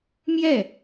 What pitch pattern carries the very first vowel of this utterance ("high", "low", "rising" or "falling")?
falling